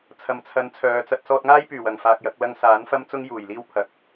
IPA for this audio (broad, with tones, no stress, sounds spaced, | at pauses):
t͡sʰ ɐ˨˩ m t͡sʰ ɐ˨˥ n t͡sʰ œː˨˧ t͡s ɐ˥ t̚ s ɔː˧ t̚ ŋ aː˥ j p yː˨˩ w ɐ˨˩ ŋ f aː˧ k̚ j ɐ˨˥ k̚ l ɐ˥ ŋ s aː˨˥ n f ɐ˥ m t͡s ʊ˥ ŋ j uː˨˩ j l iː˥ w pʰ ɐ˨˥ k̚